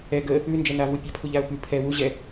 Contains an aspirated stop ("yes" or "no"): yes